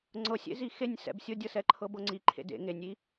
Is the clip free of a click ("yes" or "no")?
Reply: no